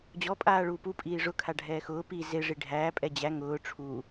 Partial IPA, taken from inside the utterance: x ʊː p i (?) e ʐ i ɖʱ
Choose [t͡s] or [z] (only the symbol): z